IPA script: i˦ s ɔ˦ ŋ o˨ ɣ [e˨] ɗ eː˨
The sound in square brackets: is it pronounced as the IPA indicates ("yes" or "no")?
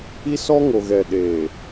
no